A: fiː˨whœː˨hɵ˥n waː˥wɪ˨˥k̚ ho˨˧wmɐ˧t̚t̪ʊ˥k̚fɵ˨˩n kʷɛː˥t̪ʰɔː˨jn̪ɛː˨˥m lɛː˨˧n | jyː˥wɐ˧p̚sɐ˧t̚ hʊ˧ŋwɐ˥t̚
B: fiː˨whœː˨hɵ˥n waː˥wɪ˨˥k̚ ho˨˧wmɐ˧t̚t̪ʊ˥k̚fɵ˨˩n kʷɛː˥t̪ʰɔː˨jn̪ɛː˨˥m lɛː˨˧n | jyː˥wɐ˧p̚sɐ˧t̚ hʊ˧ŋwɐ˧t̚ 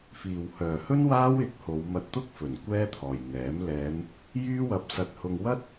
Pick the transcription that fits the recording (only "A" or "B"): A